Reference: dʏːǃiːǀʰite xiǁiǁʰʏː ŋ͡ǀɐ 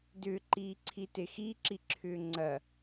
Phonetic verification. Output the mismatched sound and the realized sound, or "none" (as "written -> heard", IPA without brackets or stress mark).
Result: none